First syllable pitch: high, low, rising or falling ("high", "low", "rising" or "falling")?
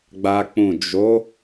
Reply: high